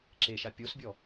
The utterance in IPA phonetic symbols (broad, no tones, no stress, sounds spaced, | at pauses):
ǁ e ʃ a pʲ o s bʲ ɔ